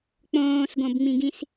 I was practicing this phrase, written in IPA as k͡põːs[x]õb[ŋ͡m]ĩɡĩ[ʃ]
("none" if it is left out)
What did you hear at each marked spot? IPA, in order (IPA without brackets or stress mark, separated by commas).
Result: ɡ, ŋ͡m, s